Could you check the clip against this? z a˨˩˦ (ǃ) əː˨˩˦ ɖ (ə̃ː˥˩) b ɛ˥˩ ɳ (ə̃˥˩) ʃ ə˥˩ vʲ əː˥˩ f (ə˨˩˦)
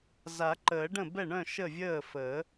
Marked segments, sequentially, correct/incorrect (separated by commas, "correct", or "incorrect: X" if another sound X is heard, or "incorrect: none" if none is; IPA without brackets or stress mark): correct, incorrect: ə̃˥˩, incorrect: œ̃˥˩, incorrect: əː˨˩˦